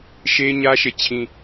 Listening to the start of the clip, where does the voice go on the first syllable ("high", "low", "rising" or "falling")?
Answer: high